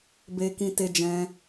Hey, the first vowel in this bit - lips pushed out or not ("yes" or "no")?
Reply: no